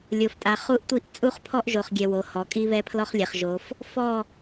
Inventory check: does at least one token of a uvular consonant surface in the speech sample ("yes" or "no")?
yes